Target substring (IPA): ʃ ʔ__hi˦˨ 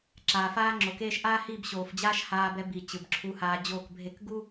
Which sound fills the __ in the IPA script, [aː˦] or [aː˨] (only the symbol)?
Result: aː˦